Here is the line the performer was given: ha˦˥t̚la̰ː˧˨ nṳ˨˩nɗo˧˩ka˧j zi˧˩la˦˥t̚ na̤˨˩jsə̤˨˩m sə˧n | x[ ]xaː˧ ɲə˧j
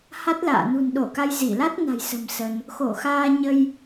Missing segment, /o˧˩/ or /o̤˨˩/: o˧˩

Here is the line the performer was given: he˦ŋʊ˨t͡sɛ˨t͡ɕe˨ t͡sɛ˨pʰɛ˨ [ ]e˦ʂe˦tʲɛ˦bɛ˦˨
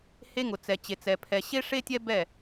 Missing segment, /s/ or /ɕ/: ɕ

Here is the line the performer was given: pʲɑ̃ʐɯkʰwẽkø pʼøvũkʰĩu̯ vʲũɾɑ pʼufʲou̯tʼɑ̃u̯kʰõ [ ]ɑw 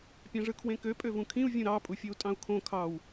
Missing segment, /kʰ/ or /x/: kʰ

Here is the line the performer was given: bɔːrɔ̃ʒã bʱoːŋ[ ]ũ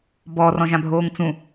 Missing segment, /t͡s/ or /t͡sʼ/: t͡s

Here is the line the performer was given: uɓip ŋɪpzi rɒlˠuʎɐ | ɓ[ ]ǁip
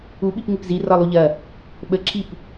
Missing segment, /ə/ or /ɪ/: ə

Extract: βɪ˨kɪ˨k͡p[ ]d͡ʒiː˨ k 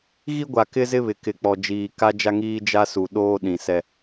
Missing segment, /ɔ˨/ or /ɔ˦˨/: ɔ˨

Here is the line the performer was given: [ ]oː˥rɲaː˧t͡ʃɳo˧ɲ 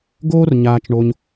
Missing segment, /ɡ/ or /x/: ɡ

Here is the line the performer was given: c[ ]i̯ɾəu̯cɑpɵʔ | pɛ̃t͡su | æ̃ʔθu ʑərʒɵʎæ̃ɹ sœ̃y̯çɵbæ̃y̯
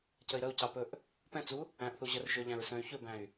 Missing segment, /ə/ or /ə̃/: ə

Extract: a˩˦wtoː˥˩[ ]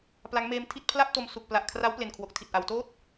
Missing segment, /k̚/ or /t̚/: t̚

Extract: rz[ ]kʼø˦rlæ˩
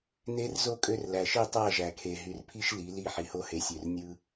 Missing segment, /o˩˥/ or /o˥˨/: o˥˨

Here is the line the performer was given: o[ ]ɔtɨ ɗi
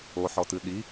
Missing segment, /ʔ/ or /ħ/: ħ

